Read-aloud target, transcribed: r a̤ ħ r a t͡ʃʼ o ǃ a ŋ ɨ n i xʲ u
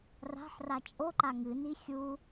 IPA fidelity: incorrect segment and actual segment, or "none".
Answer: none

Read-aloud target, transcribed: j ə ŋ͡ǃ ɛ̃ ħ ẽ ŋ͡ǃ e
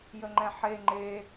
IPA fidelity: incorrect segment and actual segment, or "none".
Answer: ẽ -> e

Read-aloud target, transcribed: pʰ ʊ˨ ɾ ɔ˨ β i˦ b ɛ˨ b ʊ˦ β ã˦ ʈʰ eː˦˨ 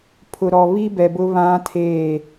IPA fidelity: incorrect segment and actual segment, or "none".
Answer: ʈʰ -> tʰ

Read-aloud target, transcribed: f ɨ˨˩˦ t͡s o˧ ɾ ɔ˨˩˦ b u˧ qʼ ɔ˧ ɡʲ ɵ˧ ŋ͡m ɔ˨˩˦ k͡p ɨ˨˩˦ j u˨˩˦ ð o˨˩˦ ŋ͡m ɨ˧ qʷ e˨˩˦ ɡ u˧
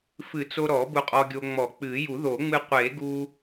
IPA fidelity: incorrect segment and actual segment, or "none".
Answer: ɵ˧ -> o˧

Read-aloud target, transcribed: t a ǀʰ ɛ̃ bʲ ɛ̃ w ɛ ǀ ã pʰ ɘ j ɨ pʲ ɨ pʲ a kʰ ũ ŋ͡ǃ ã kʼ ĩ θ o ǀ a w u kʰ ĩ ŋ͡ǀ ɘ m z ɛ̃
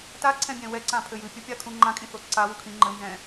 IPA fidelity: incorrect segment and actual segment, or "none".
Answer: ŋ͡ǀ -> ŋ͡ǃ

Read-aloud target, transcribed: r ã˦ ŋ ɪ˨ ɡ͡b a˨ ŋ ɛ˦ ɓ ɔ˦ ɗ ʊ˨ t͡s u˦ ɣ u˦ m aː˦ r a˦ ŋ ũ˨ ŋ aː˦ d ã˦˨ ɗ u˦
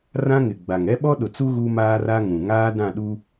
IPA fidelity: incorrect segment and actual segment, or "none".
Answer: none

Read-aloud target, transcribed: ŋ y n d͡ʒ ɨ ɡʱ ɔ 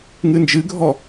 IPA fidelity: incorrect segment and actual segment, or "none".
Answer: y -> ɨ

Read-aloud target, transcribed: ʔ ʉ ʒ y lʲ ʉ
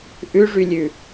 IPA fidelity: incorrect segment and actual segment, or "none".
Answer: ʒ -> ʐ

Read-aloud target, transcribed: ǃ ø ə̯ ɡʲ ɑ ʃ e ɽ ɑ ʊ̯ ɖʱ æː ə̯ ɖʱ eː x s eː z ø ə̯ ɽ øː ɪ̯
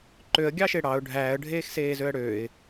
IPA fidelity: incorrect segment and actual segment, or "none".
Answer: none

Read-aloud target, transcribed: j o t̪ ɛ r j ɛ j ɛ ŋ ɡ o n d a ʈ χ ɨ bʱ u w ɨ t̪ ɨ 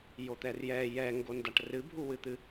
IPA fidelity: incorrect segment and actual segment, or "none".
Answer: χ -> r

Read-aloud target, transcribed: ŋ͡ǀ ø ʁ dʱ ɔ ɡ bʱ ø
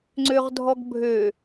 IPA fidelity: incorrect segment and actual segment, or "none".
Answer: none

